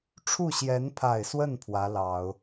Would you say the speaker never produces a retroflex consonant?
no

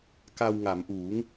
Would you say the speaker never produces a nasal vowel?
yes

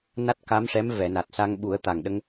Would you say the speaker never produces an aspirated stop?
yes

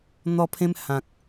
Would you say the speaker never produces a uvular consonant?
yes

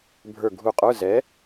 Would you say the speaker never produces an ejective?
no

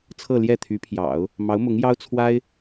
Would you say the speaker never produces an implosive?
yes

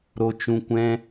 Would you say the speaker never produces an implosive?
yes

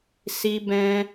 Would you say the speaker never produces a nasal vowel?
no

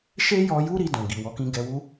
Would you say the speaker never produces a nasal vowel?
no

